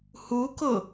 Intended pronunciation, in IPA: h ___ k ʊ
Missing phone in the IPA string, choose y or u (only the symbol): u